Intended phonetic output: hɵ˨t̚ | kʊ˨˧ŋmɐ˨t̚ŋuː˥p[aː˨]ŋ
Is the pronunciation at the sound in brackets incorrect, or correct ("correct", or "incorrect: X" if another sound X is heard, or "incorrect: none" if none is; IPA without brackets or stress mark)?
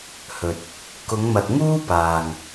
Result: correct